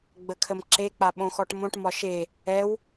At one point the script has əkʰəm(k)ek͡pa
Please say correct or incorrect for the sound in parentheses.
incorrect